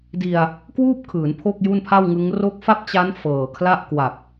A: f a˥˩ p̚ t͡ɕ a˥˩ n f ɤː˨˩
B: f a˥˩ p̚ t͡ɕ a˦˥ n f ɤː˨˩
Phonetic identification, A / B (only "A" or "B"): B